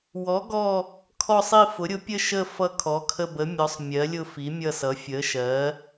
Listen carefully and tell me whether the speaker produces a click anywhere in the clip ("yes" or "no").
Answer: no